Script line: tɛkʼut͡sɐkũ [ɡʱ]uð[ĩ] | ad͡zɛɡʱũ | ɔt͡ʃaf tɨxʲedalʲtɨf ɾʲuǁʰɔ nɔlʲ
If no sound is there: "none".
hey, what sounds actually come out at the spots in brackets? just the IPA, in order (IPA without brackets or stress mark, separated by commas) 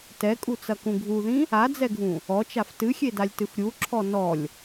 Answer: ɡʱ, ĩ